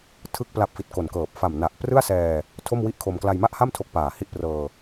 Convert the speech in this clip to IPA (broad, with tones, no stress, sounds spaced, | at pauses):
tʰ ɯ˥˩ k̚ p l a˦˥ p̚ f i˨˩ t̚ k o˨˩ n k ɤː˨˩ p̚ f a˨˩ m n a˨˩ ʔ p r ɯ˥˩ a̯ s ɛː˧ | tʰ o˥˩ m w i˥˩ ʔ kʰ o˧ m k l a˧ j m a˥˩ ʔ h a˥˩ m tʰ o˦˥ k̚ p aː˨˩ h i˥˩ ʔ p r ɤː˧